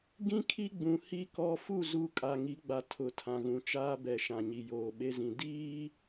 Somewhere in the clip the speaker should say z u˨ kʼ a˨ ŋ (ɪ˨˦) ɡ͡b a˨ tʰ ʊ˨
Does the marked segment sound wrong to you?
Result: yes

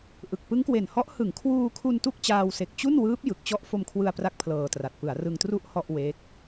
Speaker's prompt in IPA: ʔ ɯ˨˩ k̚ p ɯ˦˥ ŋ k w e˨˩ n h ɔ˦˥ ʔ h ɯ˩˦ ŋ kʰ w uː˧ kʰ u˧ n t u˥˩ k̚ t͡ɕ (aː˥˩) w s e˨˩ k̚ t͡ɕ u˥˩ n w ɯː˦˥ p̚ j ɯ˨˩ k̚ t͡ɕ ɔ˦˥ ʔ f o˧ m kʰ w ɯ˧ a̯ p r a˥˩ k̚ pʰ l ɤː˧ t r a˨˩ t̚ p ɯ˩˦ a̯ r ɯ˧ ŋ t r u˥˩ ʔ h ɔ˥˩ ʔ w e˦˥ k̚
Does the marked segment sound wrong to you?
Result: yes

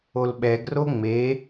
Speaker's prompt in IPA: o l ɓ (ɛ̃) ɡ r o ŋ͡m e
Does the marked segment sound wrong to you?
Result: yes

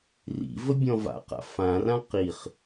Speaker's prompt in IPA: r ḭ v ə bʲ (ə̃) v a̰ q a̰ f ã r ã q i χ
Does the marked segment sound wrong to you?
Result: yes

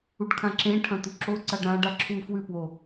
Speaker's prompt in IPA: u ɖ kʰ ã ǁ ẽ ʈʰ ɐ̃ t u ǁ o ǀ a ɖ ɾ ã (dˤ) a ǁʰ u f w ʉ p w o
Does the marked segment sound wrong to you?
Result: yes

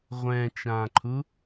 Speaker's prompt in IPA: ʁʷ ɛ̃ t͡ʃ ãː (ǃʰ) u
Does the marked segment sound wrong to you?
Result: no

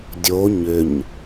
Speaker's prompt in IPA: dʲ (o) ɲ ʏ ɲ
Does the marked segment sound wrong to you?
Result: no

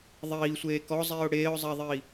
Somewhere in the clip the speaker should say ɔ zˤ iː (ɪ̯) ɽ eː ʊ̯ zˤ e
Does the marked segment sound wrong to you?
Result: yes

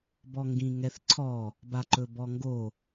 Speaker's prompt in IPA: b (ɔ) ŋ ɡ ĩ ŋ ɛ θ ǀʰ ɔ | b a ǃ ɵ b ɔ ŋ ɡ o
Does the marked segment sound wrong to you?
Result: no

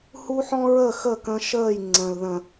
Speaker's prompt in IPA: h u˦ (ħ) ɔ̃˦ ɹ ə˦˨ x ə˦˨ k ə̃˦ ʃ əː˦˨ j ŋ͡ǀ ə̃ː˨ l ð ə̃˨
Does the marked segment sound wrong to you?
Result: no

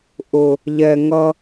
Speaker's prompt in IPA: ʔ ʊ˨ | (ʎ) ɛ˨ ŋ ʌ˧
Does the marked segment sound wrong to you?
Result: no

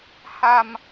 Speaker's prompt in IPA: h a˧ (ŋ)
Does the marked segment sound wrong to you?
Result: yes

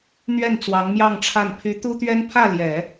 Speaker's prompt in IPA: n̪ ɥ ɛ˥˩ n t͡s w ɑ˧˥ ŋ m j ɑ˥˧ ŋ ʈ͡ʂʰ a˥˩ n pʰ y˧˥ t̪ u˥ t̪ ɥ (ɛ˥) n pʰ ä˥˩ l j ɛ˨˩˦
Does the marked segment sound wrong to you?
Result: no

